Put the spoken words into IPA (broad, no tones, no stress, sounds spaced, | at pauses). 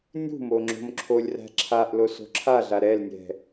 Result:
nʲ ṳ m o ŋ͡ǁ o̤ m ǁʰ o lʲ r æ̤ ǁʰ a ʔ l o s o̤ ǁʰ a ɮ a ɾ ɛ l nʲ ɛ̤